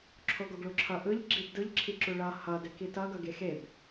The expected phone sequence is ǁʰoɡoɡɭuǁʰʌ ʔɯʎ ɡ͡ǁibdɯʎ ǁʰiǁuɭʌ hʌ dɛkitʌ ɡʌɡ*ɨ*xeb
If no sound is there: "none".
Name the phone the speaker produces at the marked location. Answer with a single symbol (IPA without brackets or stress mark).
e